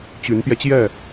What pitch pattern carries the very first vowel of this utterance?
rising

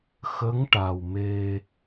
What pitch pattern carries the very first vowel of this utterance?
rising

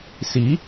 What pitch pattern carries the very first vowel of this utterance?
rising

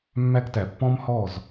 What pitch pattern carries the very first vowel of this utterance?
high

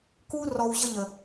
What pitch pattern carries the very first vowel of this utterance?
high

